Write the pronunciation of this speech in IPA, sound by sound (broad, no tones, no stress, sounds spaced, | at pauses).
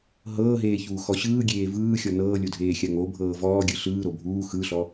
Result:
ɦ ɤː ɦ eː ç uː x ɔ ɕ ɯː ɡʲ eː v ɯː xʲ ɔ n ɤː lʲ o dʱ eː xʲ a ŋ o bʱ ɤː v ɔː ɡʲ ɯ ɬ ɯː ɾ o bʱ uː x ɯ ɬ ɔ